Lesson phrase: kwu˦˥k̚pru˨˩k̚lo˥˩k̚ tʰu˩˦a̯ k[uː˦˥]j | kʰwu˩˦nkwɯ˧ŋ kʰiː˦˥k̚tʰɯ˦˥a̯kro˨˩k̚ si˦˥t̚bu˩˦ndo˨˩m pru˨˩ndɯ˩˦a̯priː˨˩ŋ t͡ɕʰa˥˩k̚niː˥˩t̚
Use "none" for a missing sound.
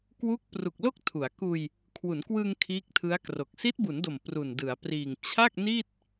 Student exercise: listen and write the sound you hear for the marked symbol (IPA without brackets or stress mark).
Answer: uː˧